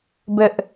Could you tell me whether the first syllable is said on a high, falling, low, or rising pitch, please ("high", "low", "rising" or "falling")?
high